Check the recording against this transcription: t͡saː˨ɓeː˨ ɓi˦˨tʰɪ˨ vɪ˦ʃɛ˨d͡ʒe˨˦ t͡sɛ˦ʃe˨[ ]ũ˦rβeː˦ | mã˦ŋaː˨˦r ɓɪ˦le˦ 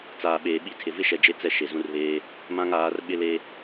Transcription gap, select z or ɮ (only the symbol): z